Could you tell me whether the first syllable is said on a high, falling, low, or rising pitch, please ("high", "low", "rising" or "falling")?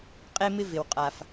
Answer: high